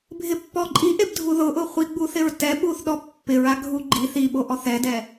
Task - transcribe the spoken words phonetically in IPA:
bʱ ɪ pː ɔ ǃʼ i ʔ e b dʱ u ð ʊ ʔ ʊ χʷ i ɡ͡b u θ ɪ ɹ t ɛ ɓ u θ ɗ ɔ pː ɪ ɹ a ɡʱ u ɡ͡ǃ i θ i ɓ o ʔ ɔ θ ɛ d ɛ

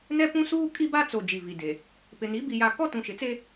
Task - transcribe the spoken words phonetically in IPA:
n ɛ˦ p ũ˦ s uː˦ kʼ i˦ b a˦ t͡s o˨ d͡ʒ i˨ v i˨ d e˨ | p ɪ˨ n i˨˦ b i˦ j a˦ k ɔ˦ t ũ˨ ʃ ɪ˨ t͡s e˦

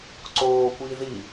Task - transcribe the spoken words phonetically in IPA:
ǀ oː kʷ iː ð i

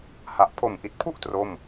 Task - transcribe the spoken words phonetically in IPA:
h a˨˩ ʔ pʰ o˨˩ m ʔ i˨˩ t̚ pʰ u˥˩ ʔ t r o˥˩ m

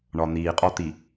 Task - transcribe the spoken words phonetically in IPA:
ɳ ɒ˨ n̪ iː˨ qʼ ɒ˦ t̪ i˨

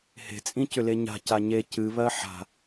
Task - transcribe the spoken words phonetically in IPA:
h e̤ t͡sʼ ĩ c ʏ l e ɲ a̤ c a ɲ e c ɨ β ɜ ħ a̤

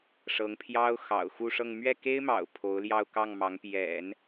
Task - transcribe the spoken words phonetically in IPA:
ʂ ɤ˧˥ ŋ pʰ j ɑ˥ ʊ̯ x ɑ̰˨˩ ʊ̯ x u˥˧ ʂ ɤ˥˧ ŋ m ɥ ɛ˥˩ k e˥ ɪ̯ m ɑ̰˨˩ ʊ̯ pʰ o˧˥ ʊ̯ l j ɑ˥˧ ʊ̯ k ɑ˥˩ ŋ m ɑ˧˥ ŋ p j ɛ̰˨˩˦ n

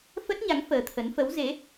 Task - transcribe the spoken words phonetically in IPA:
f ə˦˥ t̚ ɲ a˨˦ ŋ f əː˨˦ t̪ʰ ə˨˦ n f ə˨˦ w z e˨˦

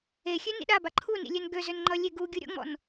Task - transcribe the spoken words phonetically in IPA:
e xʲ ø n ḭ ɗ a b a ǃʰ u n ḭ lʲ ø n ɡ ø z ø n ŋ͡ǃ ʌ lʲ e ɡ u ɡʲ u ɾʲ ɔ̰ ŋ͡m ɔ̰ n

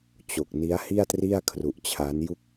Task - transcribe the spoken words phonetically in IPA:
t͡ɕ o˨˩ k̚ n i˦˥ a̯ h i˥˩ a̯ t r i˥˩ a̯ kʰ r u˨˩ ʔ t͡ɕʰ a˦˥ n j u˥˩ k̚

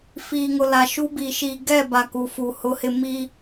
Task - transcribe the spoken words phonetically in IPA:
f iː˨ ŋ ʊ˨ l a˨ ʃ u˦ b i˨ ʃ iː˨ ɡ ɛ˦˨ b a˨ k u˨ f u˨ h ʊ˦ h ɪ˦ m i˦

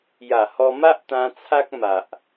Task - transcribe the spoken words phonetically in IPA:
j a˨˩ h ɔ˧ m a˦ ʔ t̪ ã˧ t͡sʰ a˦ k̚ m a˨ ʔ

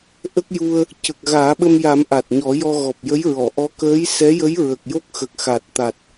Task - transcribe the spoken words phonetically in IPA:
ʔ ə˦˥ k̚ j u˧ ə̯ | c ə˨˩ k̚ ɣ aː˨˩˦ ɓ ə˧ m j a˨˩˦ m ʔ a˨˩ t̚ ɲ ɔ˨˩˦ j ɔ˧ ɣ ɔ˨˩ p̚ j ə˧˥ j ɹ ɔ˨˩˨ ʔ ɔ˧˥ k əː˧˥ j s ɛ˧˥ j ə˧˥ j ɹ ə˨˩ k̚ j o˦˥ k̚ x ə˨˩ k̚ x a˨˩ t̚ t̪ a˨˩ t̚

